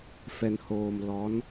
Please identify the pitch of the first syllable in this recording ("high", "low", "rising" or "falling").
low